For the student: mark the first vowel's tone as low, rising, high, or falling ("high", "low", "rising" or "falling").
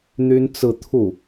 high